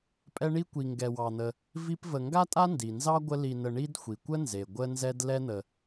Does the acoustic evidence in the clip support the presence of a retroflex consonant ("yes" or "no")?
yes